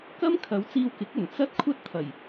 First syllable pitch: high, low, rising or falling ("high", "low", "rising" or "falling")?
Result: high